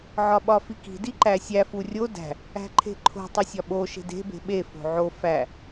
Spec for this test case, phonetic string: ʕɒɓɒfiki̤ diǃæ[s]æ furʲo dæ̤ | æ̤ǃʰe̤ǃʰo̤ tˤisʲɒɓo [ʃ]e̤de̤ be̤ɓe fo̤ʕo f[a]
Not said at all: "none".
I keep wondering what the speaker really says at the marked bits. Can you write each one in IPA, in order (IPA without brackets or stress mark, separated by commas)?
sʲ, ʃ, æ